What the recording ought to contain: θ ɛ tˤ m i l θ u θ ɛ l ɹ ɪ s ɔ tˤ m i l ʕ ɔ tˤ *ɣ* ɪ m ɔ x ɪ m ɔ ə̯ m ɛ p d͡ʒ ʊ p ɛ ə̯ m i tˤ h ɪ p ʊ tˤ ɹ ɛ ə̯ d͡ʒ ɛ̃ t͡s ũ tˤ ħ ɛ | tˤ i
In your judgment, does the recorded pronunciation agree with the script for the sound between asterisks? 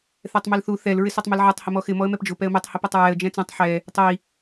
no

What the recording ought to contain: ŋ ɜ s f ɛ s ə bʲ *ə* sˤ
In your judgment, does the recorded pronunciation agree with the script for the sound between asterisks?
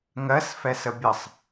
yes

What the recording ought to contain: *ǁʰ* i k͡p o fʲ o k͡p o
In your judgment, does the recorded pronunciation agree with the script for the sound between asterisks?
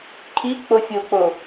no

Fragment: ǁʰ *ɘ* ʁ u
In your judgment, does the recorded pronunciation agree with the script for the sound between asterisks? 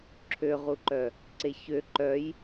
no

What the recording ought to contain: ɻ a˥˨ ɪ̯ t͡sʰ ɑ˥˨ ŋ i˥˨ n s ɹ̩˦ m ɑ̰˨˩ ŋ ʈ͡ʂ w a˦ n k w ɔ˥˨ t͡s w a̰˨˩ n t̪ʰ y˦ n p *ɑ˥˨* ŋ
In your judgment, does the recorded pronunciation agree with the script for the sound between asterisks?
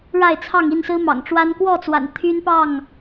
yes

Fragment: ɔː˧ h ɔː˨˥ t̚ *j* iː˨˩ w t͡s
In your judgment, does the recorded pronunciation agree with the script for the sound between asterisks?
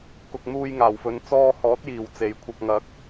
yes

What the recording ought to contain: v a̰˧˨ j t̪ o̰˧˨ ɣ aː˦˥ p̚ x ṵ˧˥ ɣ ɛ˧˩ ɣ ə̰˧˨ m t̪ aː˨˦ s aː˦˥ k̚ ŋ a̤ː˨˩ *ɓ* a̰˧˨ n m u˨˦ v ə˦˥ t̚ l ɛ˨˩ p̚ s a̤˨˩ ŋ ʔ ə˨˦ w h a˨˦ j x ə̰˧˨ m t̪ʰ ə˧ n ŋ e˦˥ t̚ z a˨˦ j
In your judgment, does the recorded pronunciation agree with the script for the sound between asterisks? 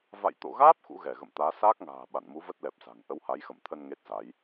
yes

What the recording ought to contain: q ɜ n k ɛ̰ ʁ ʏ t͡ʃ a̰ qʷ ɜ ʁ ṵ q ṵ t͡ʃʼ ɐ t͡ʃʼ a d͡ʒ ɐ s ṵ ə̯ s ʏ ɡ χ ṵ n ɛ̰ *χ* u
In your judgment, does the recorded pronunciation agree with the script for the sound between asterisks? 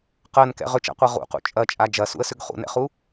yes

